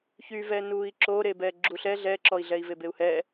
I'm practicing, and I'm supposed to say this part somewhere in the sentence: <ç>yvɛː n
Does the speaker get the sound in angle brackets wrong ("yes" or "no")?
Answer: no